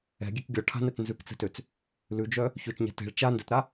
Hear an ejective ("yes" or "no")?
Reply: no